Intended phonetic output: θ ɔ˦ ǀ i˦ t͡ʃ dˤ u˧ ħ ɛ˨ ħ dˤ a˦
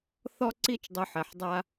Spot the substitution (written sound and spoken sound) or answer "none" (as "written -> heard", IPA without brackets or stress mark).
none